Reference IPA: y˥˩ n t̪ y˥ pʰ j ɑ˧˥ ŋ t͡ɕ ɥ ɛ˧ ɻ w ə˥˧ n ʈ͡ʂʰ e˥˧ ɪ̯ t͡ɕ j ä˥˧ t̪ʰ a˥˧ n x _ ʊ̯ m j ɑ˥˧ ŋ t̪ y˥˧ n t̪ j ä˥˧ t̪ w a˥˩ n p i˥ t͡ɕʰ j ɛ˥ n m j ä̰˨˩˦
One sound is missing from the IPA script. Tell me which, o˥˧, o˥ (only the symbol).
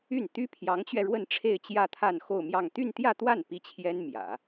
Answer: o˥˧